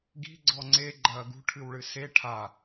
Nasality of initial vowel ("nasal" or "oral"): oral